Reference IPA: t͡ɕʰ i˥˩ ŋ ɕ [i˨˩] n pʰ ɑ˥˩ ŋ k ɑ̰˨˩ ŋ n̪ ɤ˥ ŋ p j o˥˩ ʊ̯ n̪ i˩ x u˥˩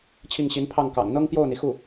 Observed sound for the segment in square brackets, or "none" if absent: i˧˥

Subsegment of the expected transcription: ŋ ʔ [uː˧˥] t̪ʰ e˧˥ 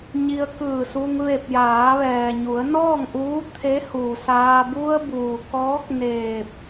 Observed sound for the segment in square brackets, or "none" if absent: uː˧˥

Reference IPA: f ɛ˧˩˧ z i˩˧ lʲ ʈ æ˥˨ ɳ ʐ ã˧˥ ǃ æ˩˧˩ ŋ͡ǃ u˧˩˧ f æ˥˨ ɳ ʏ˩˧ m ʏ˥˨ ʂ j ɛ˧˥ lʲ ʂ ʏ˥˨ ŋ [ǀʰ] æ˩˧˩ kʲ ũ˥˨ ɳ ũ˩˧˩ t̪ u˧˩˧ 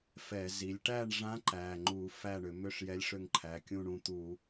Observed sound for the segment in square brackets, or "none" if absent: ǃʰ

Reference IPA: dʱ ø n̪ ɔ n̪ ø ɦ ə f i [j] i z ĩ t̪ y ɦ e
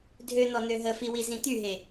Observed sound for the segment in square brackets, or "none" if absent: w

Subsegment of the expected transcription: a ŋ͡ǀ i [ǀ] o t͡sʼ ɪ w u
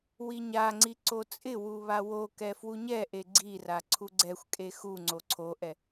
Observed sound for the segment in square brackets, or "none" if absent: ǀ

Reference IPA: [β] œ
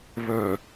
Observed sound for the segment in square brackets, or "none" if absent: β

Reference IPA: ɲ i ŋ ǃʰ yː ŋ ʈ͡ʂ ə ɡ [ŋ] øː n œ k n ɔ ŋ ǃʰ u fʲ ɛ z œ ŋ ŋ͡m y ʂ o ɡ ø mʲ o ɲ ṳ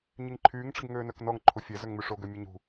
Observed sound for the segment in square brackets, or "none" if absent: ŋ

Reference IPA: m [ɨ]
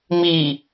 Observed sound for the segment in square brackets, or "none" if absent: i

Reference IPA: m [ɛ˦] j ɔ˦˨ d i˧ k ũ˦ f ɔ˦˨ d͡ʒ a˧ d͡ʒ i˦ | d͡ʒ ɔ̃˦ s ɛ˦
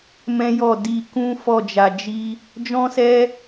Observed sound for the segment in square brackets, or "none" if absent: ɛ̃˦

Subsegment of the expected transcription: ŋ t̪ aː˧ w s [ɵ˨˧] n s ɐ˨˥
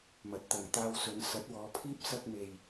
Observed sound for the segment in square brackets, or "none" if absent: ɵ˨˧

